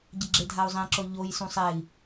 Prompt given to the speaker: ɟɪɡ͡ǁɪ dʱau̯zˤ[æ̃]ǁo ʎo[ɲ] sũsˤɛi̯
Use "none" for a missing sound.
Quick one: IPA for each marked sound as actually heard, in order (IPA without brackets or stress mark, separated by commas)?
ɛ̃, j